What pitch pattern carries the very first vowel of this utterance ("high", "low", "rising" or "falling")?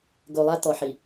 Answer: low